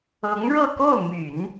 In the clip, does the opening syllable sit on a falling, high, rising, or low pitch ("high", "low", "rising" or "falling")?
rising